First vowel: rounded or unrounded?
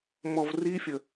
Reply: rounded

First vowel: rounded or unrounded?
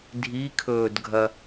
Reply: unrounded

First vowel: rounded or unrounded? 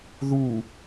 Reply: rounded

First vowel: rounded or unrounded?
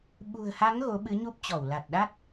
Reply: rounded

